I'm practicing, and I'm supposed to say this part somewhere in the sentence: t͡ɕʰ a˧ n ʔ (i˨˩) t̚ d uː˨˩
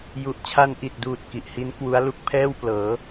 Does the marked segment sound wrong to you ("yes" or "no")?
no